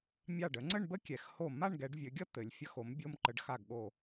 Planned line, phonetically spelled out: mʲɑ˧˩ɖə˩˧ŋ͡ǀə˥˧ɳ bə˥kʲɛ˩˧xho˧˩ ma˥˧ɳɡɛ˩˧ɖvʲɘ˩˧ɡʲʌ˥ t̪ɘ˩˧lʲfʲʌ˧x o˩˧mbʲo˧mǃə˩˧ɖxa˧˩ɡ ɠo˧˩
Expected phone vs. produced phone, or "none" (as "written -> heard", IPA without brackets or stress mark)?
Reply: none